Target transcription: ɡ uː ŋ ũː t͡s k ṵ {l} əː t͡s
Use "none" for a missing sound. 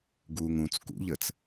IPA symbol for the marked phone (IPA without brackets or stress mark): ʎ